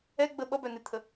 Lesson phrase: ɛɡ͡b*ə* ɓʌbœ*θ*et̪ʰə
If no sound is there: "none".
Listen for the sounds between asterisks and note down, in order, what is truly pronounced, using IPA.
ə, n

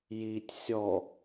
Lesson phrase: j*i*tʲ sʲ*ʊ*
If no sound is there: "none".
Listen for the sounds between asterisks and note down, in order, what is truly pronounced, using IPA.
i, ɔ

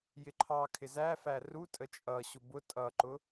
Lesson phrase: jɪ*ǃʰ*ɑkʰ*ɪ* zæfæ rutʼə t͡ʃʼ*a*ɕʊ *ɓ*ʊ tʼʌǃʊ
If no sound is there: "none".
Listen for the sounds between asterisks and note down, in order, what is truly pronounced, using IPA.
ǃʰ, ɪ, ʌ, b

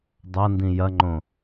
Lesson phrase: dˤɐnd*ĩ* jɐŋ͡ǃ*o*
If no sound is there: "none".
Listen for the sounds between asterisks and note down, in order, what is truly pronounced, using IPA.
ĩ, õ

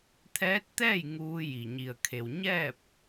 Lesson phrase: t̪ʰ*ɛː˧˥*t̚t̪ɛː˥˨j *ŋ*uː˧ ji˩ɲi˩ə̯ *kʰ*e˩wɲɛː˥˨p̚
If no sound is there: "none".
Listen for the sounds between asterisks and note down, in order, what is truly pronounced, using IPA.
ɛː˧˥, ŋ, kʰ

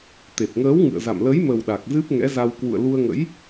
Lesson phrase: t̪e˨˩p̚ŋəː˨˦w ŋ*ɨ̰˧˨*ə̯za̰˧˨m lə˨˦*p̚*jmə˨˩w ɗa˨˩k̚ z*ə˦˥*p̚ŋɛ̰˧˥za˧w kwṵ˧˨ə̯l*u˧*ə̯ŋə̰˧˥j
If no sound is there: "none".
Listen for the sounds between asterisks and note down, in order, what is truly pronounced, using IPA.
ɨ̰˧˨, none, ɨ˦˥, u˧

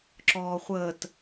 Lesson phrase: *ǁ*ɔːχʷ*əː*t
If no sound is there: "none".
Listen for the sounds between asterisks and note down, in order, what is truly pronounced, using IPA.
ǁ, əː

